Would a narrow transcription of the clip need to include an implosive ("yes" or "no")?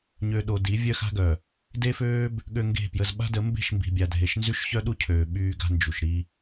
yes